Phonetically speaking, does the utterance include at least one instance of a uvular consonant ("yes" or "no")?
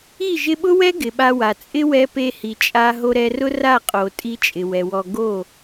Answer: yes